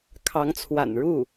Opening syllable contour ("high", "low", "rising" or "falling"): rising